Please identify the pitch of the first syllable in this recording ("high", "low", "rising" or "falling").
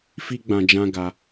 high